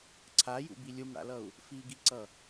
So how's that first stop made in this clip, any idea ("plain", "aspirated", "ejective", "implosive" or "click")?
click